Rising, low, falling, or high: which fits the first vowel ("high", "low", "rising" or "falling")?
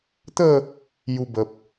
falling